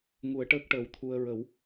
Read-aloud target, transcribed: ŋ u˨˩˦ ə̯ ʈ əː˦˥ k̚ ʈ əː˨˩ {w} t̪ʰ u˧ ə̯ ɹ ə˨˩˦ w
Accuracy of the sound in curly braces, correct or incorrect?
correct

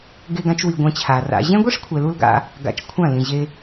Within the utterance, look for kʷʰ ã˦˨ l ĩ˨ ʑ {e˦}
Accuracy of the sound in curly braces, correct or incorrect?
incorrect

